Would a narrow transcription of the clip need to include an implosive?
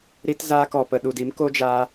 yes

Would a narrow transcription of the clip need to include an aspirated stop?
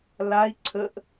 yes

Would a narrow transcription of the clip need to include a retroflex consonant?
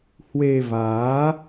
no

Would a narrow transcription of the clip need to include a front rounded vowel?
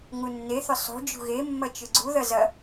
yes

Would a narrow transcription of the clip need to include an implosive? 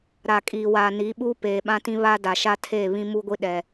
yes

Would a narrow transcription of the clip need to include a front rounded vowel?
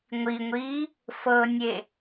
no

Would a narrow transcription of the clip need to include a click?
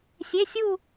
no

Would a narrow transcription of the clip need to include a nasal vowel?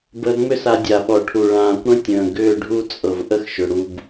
yes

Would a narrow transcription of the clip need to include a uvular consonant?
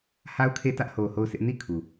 no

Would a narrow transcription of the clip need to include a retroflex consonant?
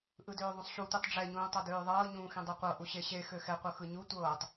yes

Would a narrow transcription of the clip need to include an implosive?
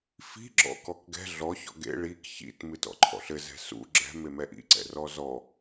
no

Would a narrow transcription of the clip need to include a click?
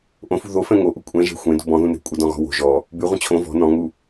no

